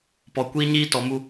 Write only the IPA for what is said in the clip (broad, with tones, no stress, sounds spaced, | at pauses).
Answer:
p ɔ˨ kʷ iː˦ ɲ iː˦ t ɔ˨ m u˦